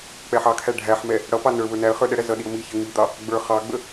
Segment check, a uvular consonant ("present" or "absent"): present